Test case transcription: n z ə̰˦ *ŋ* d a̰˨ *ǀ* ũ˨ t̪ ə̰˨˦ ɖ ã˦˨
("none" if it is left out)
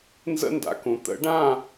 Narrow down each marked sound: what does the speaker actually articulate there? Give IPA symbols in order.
n, k

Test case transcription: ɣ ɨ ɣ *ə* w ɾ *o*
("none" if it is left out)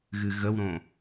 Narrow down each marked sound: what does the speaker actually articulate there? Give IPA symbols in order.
ə, õ

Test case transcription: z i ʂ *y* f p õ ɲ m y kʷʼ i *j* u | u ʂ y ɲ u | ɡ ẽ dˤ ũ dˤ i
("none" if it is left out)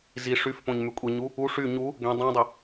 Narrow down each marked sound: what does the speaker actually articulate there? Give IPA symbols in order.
y, ɲ

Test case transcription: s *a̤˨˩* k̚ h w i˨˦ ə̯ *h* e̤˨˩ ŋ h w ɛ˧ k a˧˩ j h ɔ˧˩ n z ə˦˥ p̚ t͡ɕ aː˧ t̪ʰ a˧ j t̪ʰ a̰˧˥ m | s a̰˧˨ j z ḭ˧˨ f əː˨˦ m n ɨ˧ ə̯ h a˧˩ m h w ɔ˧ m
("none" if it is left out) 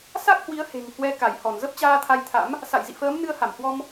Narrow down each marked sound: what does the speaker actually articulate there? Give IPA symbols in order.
a˦˥, h

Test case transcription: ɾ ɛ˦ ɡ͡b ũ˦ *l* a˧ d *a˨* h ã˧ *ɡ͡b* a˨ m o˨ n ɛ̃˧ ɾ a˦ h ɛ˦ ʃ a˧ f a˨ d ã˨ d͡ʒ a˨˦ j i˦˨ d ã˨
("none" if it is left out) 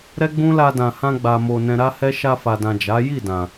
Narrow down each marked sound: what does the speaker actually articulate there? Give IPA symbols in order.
l, ã˨, ɡ͡b

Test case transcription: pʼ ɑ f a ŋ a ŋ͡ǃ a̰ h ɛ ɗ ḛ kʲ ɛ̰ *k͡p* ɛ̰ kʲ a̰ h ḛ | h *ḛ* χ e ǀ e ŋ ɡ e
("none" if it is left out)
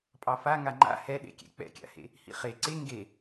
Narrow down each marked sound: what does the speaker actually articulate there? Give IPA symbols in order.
k͡p, ḭ

